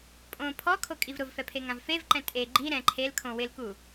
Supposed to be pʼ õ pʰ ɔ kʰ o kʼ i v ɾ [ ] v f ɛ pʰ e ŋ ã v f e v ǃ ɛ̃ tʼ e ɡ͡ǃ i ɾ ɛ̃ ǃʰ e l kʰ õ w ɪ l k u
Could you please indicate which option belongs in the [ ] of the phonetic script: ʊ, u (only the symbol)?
ʊ